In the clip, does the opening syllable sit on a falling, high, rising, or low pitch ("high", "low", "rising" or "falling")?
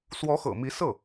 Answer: rising